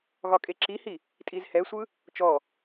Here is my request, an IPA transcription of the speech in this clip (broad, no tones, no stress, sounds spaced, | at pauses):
ɣ ɒ kʼ e ǁ i h i | tʼ i z h ɛ sʷ ɯ | t͡ʃ ɔ